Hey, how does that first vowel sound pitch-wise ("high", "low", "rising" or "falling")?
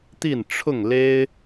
falling